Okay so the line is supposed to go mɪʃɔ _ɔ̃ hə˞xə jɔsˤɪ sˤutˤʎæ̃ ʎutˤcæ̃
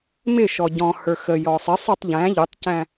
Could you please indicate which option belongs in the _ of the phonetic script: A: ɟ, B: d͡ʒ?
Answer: A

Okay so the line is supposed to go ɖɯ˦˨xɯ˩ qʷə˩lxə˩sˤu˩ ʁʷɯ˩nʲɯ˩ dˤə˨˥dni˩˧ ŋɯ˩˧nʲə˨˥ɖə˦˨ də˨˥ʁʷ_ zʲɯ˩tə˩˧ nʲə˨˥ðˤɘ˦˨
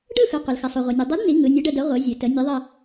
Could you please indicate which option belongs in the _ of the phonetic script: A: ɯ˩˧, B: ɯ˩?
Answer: A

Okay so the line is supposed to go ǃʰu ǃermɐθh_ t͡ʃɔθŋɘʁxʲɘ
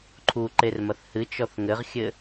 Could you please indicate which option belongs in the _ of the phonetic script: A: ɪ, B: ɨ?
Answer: B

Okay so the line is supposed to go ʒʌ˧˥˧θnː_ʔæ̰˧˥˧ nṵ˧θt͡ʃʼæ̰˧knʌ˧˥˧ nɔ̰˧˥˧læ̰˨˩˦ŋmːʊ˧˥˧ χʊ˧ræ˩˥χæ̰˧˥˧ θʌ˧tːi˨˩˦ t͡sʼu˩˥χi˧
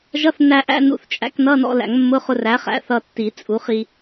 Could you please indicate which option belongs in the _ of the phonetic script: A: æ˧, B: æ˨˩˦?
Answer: A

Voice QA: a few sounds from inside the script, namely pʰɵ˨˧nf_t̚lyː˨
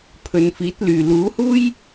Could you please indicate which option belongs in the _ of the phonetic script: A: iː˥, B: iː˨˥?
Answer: B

